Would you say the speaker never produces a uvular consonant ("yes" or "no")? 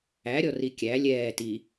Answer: yes